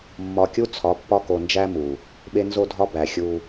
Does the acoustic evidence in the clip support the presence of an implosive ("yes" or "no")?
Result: yes